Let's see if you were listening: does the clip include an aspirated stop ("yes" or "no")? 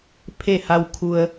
yes